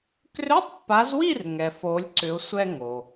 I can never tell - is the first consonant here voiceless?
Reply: yes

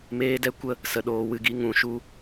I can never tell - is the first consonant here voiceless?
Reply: no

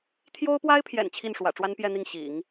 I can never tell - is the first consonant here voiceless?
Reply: yes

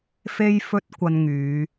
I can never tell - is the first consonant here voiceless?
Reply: yes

